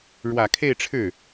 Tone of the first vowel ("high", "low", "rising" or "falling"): low